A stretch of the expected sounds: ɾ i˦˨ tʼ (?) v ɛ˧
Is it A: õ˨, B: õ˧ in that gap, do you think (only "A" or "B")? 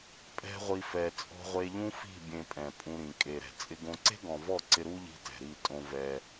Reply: B